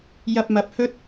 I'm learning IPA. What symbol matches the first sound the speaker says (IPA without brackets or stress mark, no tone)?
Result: j